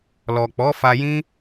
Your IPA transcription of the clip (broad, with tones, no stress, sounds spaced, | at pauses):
l ɔ˨ k͡p ɔ˨˦ f a˧ j ĩ˦